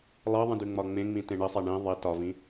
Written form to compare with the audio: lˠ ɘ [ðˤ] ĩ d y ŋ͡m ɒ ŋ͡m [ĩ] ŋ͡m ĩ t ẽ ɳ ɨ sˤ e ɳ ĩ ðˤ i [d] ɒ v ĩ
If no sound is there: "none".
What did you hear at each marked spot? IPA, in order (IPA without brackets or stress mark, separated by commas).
ðˤ, ẽ, t